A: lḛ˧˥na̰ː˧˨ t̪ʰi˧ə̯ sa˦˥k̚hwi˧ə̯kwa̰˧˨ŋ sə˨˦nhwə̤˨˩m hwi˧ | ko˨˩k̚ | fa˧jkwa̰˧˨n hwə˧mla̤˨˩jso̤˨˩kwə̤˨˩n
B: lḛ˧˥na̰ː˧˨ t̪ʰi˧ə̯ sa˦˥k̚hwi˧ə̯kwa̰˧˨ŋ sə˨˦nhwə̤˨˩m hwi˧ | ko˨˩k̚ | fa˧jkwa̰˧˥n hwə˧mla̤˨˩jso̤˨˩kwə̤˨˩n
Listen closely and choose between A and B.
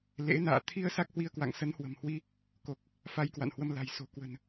A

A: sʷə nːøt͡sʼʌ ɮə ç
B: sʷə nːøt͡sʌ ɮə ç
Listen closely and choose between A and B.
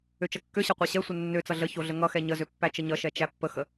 B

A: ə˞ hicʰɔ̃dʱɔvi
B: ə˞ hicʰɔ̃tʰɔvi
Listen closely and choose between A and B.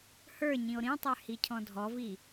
A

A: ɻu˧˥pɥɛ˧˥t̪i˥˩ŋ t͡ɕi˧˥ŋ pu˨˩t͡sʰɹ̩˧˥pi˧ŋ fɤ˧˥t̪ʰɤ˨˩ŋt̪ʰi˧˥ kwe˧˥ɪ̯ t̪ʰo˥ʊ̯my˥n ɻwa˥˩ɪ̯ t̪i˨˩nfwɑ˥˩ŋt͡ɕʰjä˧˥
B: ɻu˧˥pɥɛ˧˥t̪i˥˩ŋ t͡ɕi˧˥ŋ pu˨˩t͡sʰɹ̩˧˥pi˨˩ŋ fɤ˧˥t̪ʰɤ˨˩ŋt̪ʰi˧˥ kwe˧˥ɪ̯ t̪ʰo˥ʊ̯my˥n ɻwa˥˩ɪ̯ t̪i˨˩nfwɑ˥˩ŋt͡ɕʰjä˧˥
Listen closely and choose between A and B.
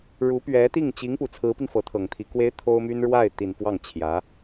A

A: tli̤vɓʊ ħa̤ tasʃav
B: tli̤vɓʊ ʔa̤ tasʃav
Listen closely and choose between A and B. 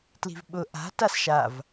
B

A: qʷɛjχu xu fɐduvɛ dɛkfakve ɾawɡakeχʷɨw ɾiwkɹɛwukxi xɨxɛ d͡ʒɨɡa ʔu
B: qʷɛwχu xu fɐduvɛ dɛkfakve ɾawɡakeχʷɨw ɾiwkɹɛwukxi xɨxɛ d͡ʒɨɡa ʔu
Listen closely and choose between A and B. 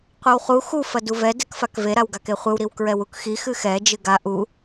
B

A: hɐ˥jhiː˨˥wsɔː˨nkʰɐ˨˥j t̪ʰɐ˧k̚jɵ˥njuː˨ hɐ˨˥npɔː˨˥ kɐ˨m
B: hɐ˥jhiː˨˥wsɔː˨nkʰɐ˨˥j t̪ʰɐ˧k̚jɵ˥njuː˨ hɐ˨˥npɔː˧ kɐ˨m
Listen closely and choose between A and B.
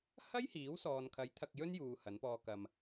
B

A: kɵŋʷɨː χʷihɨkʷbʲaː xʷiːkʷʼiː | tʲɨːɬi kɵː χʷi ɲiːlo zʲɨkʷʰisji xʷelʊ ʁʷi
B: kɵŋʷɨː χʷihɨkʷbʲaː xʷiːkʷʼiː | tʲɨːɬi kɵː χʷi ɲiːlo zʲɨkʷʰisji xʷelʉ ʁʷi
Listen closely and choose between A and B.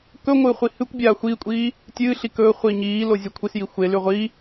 B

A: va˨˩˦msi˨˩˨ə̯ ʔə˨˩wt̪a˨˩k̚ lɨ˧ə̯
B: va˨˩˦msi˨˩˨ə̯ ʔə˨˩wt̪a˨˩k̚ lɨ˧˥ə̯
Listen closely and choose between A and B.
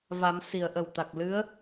B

